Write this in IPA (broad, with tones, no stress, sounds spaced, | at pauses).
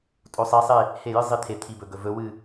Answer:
tʼ o˧˥ sˤ i˧˥ sˤ e˥˧ | h e˥˩ j ɨ˥ zˤ i˧˥ t̪ʰ e˨ t̪ʰ i˨ b ɵ˨ ɡ ɵ˨ v ɵ˧˥ w ɨ˥˧